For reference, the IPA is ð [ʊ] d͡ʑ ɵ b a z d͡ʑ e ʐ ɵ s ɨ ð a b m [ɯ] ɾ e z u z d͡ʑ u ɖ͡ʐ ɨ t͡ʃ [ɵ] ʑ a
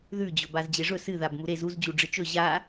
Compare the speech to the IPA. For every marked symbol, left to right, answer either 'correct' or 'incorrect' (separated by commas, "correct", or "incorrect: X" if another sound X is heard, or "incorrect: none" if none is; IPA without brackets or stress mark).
incorrect: ʉ, incorrect: u, correct